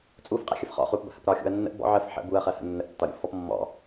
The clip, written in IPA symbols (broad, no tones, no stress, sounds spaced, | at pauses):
t͡sʼ u f qʼ ɛ̰ xʲ ə f χ ɔ̰ χ u p b ə̰ h ə̰ p ɾ ɒ xʲ ṵ ɐ̯ nː ə̰ ʔ b ɔ̰ ʕ ə f ħ ə̰ b u ɐ̯ χ ɜ h ə̰ nː ə ʔ tː ɒ ɾʲ ṵ f ɔ p mː ɔ̰